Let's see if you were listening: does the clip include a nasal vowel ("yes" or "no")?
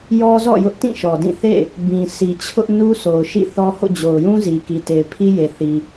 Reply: yes